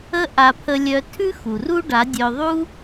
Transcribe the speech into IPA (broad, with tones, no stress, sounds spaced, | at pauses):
ə˦ ʔ a˧ pʰ ə˧ lʲ œ˧ tʰ ʉ˦ x u˨ r u˦ ɖ a˨˦ dʲ œ˧ ðˤ u˦